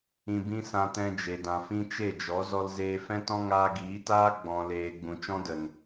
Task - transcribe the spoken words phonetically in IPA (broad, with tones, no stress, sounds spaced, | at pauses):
ĩ˧ b ĩ˦ s ã˧ t ɛ̃˧ d͡ʒ e˨ d ã˨ f ĩ˦ t͡ʃ e˦˨ d͡ʒ ɔ˨˦ z ɔ˧ l z eː˧ f ɛ̃˦ t ɔ̃˦ ŋ aː˧ ɡ iː˨˦ t aː˦ ɡ͡b ɔ̃˨ l eː˨ ɡ͡b ũ˨ t͡ʃ ɔ̃˦ d ə˨ n